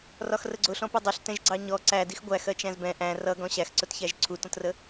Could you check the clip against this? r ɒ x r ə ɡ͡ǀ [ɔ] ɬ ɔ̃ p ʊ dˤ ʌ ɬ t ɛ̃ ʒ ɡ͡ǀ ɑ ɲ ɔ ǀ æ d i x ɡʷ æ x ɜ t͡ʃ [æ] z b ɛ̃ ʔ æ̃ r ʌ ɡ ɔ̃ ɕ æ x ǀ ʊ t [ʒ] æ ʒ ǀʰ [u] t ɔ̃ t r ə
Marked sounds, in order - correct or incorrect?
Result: incorrect, incorrect, incorrect, correct

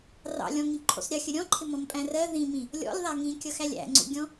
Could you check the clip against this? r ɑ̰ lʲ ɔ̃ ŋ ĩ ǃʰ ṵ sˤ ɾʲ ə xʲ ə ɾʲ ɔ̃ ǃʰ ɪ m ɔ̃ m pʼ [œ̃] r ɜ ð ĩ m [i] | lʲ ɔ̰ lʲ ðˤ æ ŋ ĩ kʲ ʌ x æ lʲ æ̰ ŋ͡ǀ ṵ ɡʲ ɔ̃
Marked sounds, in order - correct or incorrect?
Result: incorrect, incorrect

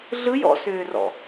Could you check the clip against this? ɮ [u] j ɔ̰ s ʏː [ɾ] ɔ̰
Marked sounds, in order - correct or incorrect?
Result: incorrect, incorrect

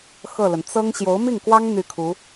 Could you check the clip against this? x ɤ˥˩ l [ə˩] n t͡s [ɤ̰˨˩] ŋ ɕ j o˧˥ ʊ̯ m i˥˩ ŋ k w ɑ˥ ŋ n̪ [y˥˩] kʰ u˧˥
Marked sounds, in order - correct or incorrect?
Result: correct, incorrect, correct

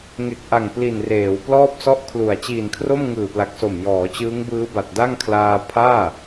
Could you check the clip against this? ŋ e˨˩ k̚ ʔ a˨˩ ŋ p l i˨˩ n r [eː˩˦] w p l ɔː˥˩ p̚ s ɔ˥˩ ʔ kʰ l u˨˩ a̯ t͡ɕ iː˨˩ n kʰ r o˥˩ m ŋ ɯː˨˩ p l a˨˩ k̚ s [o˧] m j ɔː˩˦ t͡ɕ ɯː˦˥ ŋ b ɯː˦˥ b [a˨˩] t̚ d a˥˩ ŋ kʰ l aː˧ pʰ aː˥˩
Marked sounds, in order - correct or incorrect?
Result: correct, incorrect, correct

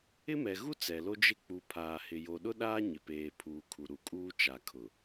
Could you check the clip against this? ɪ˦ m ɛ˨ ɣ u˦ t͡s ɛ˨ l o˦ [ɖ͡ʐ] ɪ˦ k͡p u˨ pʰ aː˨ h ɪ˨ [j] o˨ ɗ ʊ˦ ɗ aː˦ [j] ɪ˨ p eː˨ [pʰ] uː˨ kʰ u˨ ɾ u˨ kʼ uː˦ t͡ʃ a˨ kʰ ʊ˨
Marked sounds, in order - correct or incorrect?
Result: incorrect, correct, incorrect, correct

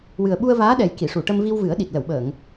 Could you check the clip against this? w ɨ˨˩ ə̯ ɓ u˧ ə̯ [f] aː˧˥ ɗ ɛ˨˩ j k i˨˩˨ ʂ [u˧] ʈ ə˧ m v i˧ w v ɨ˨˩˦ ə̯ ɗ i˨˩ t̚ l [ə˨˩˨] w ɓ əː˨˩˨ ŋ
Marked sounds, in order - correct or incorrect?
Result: incorrect, incorrect, correct

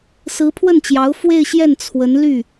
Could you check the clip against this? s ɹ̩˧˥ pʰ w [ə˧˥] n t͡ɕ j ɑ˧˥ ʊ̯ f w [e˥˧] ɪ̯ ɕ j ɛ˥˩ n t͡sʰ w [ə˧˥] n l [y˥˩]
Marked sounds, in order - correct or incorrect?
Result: incorrect, correct, correct, correct

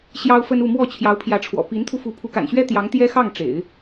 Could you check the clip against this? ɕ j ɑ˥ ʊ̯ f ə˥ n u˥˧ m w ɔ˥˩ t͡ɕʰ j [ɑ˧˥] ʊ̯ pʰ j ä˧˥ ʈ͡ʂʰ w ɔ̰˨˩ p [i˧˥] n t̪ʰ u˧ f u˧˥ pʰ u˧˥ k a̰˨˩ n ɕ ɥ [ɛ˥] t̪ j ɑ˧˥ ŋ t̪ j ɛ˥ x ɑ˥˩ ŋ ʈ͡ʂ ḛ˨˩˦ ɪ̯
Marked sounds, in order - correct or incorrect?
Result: correct, correct, correct

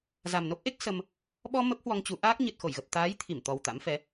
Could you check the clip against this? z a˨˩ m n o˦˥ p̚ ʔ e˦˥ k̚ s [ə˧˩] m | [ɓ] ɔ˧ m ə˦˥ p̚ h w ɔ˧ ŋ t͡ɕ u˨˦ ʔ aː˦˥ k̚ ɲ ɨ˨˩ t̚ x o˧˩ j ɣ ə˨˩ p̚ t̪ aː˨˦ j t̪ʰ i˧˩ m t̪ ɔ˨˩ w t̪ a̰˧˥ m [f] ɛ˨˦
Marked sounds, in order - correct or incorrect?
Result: incorrect, correct, correct

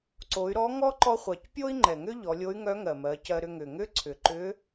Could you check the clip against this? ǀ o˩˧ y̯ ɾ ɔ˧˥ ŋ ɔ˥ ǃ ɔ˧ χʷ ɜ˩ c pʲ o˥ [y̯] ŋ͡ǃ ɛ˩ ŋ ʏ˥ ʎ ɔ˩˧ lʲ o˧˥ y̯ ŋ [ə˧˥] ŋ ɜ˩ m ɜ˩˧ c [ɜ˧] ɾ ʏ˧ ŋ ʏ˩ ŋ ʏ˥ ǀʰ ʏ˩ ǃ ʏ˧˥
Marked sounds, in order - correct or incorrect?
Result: incorrect, incorrect, correct

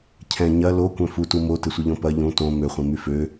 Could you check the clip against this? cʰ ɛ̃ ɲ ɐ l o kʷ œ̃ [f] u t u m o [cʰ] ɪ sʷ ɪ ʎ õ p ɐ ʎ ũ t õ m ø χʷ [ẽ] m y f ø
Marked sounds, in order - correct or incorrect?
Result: correct, incorrect, incorrect

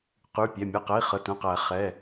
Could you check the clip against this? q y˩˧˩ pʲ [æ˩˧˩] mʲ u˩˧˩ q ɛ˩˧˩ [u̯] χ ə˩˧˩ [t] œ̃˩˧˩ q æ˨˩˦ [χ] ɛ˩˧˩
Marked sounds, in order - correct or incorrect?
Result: correct, incorrect, correct, correct

